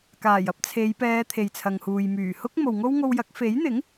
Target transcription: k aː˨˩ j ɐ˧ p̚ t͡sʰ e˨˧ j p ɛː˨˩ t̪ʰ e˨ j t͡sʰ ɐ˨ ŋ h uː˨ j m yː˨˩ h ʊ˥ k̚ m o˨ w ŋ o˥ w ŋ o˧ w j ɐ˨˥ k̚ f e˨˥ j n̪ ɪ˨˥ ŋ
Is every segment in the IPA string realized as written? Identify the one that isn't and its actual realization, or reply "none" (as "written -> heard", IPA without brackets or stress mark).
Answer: ɛː˨˩ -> ɛː˨˧